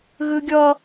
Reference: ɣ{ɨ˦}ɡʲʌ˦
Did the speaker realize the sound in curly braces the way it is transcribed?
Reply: yes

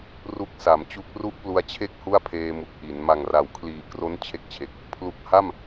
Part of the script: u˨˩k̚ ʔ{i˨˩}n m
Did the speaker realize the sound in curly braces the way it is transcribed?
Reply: no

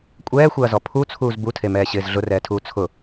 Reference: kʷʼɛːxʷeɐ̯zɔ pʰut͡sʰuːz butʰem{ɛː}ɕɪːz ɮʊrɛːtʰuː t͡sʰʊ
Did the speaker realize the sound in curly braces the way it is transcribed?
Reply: yes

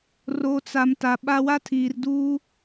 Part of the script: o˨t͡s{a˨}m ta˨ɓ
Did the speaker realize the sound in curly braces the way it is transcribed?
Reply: yes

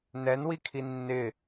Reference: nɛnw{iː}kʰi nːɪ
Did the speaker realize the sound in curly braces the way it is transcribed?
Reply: no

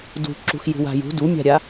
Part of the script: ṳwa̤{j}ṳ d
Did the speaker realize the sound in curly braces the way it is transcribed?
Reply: yes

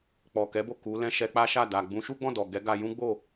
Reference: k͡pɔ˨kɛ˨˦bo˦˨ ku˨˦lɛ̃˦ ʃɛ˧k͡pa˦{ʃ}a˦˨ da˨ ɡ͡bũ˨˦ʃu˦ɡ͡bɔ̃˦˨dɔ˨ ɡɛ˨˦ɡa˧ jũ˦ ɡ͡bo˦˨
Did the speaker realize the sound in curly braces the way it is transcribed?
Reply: yes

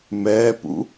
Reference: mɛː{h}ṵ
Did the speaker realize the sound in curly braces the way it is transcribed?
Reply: no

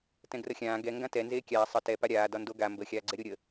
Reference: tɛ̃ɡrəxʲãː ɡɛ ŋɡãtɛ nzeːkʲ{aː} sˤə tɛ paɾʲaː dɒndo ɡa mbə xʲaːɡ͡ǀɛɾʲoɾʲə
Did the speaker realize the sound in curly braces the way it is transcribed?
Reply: yes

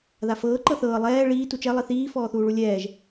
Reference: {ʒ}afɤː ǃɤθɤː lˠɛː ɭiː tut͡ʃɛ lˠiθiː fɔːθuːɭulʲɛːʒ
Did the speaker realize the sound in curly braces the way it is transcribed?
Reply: no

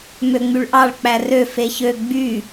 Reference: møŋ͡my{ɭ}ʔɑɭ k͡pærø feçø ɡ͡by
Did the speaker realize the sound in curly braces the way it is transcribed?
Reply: yes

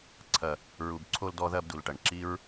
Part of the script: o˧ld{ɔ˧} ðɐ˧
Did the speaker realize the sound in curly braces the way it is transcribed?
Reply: yes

